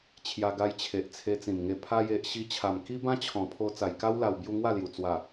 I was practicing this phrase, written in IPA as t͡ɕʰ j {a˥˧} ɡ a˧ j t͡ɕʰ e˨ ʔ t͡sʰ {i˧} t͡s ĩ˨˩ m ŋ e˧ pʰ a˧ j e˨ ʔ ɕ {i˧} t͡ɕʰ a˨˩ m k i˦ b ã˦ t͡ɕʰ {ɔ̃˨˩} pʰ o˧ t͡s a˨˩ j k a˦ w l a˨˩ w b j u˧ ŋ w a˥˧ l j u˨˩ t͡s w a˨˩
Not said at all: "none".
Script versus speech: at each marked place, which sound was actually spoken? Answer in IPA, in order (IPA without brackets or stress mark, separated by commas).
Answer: a˧, e˧, i˧, ɔ̃˨˩